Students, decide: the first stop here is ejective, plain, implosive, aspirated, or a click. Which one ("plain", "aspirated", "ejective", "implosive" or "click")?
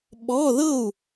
implosive